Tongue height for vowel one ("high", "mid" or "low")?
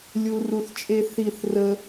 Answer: high